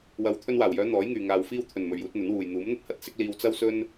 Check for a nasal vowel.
absent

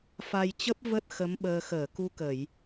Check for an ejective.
absent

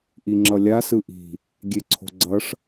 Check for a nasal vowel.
absent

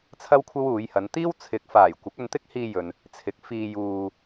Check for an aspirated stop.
present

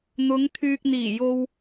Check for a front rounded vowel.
present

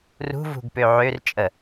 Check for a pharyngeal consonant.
present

